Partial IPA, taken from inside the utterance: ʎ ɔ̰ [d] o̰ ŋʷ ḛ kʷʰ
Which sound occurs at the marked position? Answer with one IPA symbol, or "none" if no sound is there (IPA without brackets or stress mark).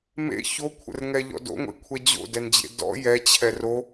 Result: d